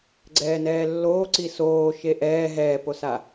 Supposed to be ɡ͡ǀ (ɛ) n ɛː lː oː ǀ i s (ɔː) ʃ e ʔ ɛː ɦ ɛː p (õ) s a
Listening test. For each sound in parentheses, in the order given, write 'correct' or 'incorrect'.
incorrect: ɛː, incorrect: oː, incorrect: o

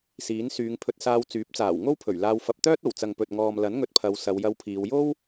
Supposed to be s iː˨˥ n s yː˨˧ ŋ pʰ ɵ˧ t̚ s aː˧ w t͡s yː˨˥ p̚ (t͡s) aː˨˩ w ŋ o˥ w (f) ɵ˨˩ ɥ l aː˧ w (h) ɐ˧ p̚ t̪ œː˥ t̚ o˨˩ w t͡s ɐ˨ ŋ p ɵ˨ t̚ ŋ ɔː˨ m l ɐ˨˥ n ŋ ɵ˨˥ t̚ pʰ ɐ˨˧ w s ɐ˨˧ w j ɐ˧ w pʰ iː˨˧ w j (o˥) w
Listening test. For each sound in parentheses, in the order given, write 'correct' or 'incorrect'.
correct, incorrect: pʰ, incorrect: f, correct

